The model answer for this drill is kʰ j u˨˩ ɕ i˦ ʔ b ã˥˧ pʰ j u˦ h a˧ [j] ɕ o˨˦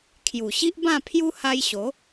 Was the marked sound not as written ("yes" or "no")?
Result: no